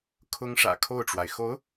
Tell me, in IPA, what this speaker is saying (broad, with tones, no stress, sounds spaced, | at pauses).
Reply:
kʰ ʊ˥ ŋ ʂ ä̰˨˩ kʰ o˥˩ ʊ̯ ʈ͡ʂ w a˩ ɪ̯ x o˧˥ ʊ̯